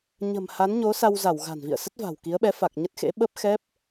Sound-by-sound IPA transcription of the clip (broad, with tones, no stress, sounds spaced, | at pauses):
ɲ ə̤˨˩ m h a˨˦ n ɲ o˨˦ s a˧ w z a˧˩ w ɣ a̤˨˩ n v ḭ˧˨ ə̯ s ə˦˥ t̚ v a̤˨˩ w k i˨˦ ə̯ ɓ ɛ˨˦ f a˨˩ k̚ ɲ ə˦˥ t̚ x ḛ˧˥ ɓ ə˦˥ p̚ x ɛ˦˥ p̚